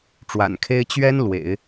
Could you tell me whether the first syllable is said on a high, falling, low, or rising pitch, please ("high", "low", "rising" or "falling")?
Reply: low